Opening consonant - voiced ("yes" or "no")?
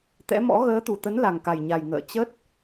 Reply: no